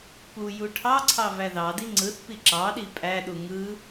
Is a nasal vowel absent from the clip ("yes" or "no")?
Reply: yes